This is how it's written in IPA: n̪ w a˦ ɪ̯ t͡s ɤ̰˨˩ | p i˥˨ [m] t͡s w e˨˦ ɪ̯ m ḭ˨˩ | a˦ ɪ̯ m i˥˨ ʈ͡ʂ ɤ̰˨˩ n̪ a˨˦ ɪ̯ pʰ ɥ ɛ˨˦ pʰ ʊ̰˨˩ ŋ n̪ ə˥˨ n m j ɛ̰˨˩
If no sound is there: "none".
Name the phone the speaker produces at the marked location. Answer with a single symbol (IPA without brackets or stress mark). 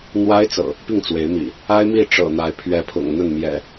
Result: ŋ